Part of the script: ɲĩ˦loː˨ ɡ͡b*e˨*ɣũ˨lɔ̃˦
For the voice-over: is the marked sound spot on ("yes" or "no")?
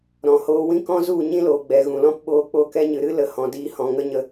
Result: no